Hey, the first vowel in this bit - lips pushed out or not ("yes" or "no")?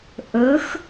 yes